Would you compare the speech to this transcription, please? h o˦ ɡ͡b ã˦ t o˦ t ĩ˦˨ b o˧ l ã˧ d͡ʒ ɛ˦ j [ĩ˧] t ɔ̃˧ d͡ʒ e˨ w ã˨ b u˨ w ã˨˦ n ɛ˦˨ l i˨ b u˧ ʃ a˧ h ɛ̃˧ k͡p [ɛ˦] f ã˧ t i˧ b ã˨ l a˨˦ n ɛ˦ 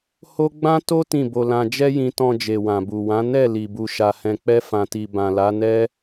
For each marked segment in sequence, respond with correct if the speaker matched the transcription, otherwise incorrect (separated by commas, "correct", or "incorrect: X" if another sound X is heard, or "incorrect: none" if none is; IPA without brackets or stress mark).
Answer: correct, correct